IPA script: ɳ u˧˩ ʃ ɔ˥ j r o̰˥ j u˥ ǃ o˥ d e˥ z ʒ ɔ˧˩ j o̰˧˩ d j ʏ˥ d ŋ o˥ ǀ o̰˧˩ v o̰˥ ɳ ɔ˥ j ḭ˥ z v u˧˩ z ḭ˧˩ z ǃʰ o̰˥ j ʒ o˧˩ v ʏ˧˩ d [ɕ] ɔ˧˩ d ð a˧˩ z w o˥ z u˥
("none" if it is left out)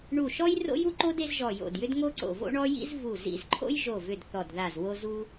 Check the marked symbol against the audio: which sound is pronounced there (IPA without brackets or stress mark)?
θ